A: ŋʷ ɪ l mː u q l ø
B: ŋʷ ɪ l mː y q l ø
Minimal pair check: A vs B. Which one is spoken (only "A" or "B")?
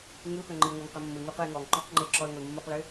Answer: A